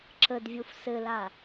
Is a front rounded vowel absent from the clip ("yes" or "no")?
yes